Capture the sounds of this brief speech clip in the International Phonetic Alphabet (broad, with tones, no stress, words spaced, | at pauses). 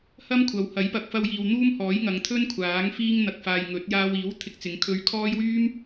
hɐ˥mkʷʰɐ˨˧whɐ˨˥j pɐ˨k̚fɐ˧wjiː˨w n̪uː˥mhɔː˨˥j ŋɐ˨˧ŋt̪ʰɵ˥nkʷʰaː˨˥ŋ fiː˧ŋn̪ɐ˨k̚ faː˨jŋɵ˨˥t̚jaː˧w iː˨˥w t̪ʰɪ˧k̚t͡sɪ˨˧ŋkʰɵ˧ɥ kʰɔː˥j wyː˥m